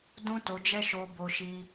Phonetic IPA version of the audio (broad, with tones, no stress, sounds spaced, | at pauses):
d ũ˦ t o˧ d͡ʒ ɛ˦ ʃ o˧ b o˦ ʃ i˦